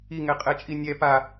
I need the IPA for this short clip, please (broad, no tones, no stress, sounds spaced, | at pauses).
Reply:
i ŋ ɛ qʼ ɛ t͡ʃʼ i nʲ ɛ p a